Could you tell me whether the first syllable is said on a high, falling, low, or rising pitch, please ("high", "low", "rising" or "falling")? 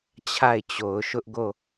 falling